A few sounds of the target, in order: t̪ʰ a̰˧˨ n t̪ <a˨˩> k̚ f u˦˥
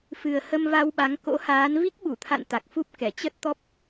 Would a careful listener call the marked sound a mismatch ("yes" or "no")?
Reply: no